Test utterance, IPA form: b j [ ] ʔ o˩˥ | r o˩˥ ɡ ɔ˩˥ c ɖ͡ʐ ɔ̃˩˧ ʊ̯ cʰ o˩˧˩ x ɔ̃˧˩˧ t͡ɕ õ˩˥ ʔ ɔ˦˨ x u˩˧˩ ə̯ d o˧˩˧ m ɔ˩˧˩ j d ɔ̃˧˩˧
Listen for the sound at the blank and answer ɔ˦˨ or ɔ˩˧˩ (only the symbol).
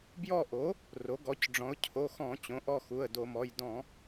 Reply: ɔ˦˨